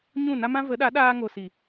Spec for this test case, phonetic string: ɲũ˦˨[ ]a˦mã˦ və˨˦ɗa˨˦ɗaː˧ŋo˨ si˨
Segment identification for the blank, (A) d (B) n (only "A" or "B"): B